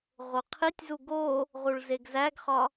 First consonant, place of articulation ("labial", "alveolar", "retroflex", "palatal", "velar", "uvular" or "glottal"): uvular